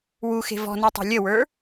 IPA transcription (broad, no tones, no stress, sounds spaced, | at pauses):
w u x e̤ v ɔ̤ n u tˤ e̤ lʲ ə w ə˞